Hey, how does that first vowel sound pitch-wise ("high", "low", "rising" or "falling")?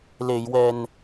low